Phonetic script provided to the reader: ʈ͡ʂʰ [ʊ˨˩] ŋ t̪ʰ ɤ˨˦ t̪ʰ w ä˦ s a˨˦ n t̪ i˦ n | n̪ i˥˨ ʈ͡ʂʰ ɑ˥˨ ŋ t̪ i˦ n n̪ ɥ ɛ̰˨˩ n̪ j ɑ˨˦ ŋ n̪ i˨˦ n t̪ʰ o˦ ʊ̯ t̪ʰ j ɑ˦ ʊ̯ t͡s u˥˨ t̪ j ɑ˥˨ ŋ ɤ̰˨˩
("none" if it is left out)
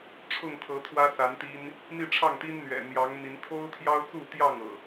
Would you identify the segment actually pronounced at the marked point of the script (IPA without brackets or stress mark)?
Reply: ʊ˥˨